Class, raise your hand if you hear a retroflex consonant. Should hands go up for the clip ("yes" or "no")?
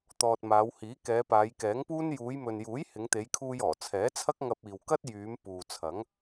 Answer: no